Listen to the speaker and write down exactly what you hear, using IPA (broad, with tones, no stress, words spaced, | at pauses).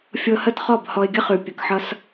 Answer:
fʲɤ˧hə˥˩tχɔ˥˩b hɔ˧ɪ̯ɡʲə˥χʉ˩ pʲə˩kħʌ˧s